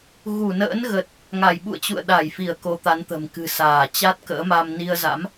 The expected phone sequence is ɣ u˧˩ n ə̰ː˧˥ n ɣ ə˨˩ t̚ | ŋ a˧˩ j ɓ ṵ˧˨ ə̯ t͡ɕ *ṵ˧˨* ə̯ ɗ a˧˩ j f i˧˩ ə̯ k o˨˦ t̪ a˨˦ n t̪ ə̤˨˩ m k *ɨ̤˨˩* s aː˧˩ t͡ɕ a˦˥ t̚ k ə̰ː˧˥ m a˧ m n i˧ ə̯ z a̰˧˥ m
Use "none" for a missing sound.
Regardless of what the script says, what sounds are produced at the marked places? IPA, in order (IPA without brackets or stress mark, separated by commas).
ṵ˧˨, ɨ̤˨˩